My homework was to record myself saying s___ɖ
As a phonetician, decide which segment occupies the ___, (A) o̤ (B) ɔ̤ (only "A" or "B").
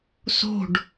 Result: A